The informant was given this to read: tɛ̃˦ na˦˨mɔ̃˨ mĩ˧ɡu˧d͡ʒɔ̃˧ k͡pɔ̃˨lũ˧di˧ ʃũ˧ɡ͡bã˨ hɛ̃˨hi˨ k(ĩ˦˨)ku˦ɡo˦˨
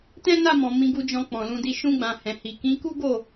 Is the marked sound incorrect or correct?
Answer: incorrect